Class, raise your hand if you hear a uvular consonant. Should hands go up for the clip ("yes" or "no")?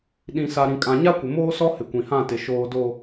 no